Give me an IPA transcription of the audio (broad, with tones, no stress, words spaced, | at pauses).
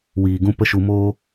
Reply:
wiː˨ɡũ˧ pə˦ʃu˧ moː˦